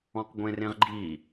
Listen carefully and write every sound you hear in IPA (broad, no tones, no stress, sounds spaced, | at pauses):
ɔ̃ q ɡʷ ẽ r ẽ ʁ ɡ͡ǃ i